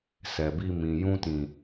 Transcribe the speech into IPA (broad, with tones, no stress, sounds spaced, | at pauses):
s ɛ˨ b i˧ m ĩ˨ j ũ˧ t ĩ˨